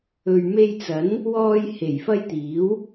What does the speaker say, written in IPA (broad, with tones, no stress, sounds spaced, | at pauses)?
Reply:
ɵ˨ ɥ m e˧ j t͡s ɐ˨˥ n | w ɔː˧ j h e˨˩ j f ɐ˧ j t̪ iː˨˥ w